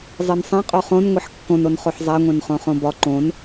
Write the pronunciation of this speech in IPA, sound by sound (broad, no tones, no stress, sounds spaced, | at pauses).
zˤ i n sˤ ẽ qʼ o χ õ n ŋʷ e ħ kː õ n o n χ o ħ zˤ æ ŋʷ ẽ n χ õ χ õ b ɒ ǃ õ n